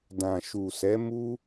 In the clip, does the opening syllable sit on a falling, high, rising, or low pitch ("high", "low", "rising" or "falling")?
low